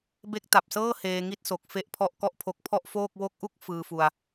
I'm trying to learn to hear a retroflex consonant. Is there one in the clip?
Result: no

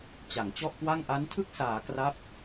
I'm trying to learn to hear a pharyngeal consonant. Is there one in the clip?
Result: no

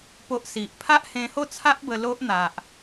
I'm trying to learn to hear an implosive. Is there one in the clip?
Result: no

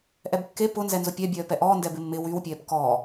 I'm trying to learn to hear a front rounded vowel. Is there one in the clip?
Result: yes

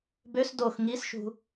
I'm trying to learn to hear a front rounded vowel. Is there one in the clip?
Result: yes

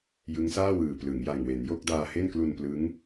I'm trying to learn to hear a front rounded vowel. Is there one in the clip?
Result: no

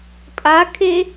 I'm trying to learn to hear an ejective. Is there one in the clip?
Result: yes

